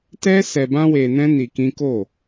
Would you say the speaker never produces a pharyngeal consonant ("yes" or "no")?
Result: yes